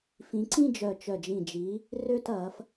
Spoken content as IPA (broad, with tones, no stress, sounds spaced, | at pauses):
f ĩ˨˦ ǀ ĩ˥˧ d͡ʒ œ˧˩ t͡ʃ œ˧˩ d͡ʒ ĩ˧˩ d͡ʒ i˨˦ | r ø˥˧ t ɐ˨˦ f